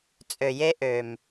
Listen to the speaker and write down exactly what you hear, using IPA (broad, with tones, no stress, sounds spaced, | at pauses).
t͡sʼ ø˨ j e˦ ʔ ø˨ m